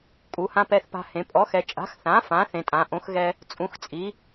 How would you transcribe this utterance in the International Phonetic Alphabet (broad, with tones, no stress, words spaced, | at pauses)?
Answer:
kʼu˩˧hã˧ pɛ˧θpa̤˧hẽ˩˧ pʼɔ˩˥xɛ˩˧ t͡ʃʼa̤˩˥xθã˩˥ fã˩˥ θẽ˩˧tʼã˩˧ʔõ˩˥xɣɛ˧ | t͡sʼũ˩˥xt͡sʼi˩˥